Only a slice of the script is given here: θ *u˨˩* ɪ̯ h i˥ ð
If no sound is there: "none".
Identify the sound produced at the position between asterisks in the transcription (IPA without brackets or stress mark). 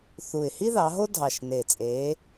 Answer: u˨˩